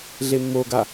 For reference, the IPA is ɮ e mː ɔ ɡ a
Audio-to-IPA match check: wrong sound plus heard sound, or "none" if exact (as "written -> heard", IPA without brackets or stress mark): ɔ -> o